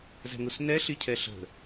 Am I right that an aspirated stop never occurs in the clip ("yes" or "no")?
no